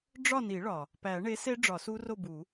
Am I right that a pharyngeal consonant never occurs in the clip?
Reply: yes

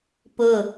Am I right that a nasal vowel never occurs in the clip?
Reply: yes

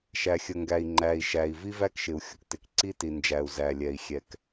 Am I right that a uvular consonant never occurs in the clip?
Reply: yes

